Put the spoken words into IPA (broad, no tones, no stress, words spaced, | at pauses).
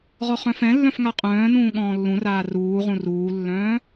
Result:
ʁɔχœ̃fɛ̃lːœ̃f ŋaqʼœ̃ːnũː ɠɔ̃ːlːũraː ruːʁũ ruːlːœ̃ː